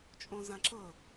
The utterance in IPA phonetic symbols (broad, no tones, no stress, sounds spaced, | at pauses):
t͡ʃʼ õ z ã ǁ ɤ